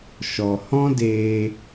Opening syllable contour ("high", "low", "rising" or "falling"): low